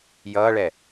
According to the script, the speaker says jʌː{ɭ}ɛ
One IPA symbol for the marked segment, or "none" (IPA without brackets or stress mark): ɭ